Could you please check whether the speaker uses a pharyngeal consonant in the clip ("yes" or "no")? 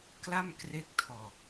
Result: no